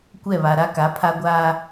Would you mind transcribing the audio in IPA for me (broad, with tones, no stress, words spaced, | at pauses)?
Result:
kʷɛ˦˨βa˨ɾa˦ ka˨˦pʰa˦ɡʷaː˦